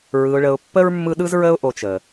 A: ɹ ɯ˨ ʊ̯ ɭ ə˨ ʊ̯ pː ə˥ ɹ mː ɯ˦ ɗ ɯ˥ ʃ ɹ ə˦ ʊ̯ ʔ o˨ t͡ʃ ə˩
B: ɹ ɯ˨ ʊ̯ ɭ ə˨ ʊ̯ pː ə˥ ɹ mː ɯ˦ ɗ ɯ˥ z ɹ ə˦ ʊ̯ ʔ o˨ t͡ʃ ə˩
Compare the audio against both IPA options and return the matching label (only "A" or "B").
B